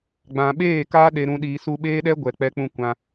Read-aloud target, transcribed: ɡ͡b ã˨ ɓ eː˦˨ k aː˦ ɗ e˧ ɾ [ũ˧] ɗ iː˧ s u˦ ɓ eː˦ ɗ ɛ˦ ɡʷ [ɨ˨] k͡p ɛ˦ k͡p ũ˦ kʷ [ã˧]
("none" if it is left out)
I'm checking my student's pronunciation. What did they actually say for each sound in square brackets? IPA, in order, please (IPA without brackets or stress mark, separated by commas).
ũ˧, ɛ˨, ã˧